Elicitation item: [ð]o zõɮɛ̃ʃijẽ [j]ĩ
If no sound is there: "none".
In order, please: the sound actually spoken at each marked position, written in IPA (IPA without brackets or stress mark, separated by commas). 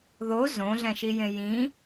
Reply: ð, j